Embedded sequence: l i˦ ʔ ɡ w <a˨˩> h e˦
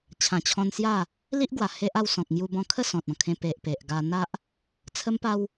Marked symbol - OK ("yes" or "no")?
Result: yes